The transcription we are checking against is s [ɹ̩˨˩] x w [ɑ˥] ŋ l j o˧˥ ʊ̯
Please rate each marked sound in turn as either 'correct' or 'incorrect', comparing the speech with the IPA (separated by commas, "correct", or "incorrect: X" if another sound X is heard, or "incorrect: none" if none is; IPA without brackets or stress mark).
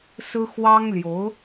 incorrect: ɹ̩˥, correct